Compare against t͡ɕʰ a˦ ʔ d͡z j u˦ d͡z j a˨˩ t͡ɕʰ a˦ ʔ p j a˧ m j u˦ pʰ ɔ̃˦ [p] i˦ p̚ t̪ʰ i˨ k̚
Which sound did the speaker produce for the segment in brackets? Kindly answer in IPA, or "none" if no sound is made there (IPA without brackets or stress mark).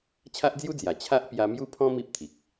m